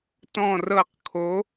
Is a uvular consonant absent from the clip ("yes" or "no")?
no